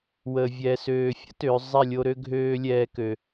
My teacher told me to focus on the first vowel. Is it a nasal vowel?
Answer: no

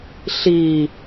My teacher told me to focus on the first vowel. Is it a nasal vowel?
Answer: no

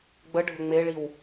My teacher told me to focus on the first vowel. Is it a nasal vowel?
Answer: no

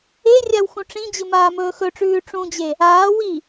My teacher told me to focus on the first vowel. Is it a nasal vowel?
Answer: no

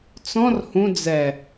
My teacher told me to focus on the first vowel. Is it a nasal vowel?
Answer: yes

